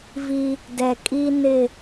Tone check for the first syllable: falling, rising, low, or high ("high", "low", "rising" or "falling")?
high